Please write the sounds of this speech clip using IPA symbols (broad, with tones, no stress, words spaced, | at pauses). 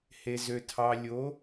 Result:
he˨zø˨ tʰɑ˨lʲo˨˦